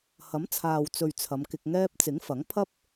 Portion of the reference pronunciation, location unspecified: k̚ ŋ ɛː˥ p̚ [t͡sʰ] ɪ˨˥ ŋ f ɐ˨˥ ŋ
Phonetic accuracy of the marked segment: incorrect: t͡s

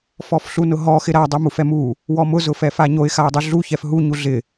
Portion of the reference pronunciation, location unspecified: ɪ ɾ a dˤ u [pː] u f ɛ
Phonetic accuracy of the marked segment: incorrect: m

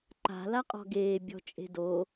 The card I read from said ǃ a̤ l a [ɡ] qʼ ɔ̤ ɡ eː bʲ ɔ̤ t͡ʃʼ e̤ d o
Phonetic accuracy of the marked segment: incorrect: none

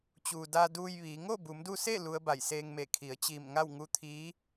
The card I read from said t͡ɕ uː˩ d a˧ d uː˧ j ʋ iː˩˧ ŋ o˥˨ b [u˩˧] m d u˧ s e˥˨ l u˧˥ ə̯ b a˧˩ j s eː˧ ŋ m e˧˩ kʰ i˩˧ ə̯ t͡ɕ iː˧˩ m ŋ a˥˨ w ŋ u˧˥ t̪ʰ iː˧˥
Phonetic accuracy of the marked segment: correct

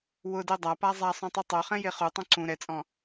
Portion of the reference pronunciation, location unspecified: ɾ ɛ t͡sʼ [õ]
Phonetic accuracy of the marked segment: incorrect: ɔ̃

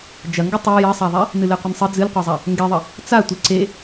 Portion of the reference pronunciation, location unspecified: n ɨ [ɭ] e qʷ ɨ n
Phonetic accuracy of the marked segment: incorrect: l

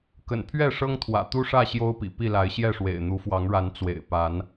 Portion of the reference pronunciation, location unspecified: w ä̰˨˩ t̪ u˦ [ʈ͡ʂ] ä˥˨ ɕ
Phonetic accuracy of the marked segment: incorrect: ʂ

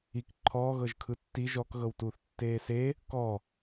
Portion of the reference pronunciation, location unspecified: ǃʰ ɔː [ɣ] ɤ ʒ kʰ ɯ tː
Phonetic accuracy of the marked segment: correct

